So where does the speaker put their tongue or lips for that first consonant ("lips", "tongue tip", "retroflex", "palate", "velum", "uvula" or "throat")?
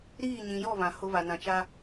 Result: tongue tip